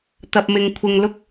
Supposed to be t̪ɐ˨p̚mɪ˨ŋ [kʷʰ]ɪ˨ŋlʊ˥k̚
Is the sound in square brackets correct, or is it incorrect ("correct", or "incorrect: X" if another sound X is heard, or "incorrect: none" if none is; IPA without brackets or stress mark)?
correct